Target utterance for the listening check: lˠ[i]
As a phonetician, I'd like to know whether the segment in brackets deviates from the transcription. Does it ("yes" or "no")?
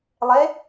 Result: yes